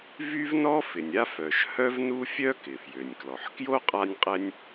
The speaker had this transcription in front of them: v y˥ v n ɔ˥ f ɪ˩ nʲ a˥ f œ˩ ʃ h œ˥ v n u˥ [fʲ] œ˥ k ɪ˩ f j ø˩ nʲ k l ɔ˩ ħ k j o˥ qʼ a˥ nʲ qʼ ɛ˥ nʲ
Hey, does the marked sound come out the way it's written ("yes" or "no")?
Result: yes